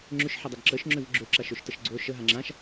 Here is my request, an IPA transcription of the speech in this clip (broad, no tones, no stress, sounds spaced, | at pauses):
ŋ͡ǁ ʏ ʃ ħ ə dˤ ɪ ɡ ǁ ə ʃ ŋ͡ǁ ʏ v ɡ͡ǁ ø ǁ a ʃ ø ʃ t ə ʃ ɡ͡ǀ o ʃ ə ɦ a ŋ͡ǁ ã ʃ